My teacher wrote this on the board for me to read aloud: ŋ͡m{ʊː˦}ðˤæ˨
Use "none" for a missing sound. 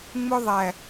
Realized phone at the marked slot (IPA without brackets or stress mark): ʊ˦